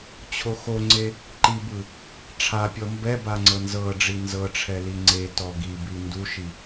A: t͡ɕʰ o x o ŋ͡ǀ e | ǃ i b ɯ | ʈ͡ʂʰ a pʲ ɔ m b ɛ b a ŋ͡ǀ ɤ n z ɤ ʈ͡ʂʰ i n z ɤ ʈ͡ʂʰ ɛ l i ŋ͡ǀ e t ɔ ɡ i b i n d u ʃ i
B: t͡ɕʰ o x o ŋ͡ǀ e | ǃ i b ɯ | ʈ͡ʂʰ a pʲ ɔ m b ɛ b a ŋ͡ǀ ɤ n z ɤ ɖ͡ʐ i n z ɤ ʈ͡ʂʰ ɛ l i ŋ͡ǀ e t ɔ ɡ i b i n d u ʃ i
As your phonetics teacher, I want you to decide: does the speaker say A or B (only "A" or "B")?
B